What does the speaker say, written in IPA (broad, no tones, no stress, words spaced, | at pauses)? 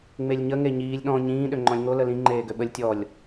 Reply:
ŋ͡melʲɲə ŋeɲiːlʲ ɗɔ̃ ɲĩː ɗøŋ͡ǃɔ̃lʲŋo ləlĩ ŋ͡ǃeːɡøɓəlʲ tʲɔlʲ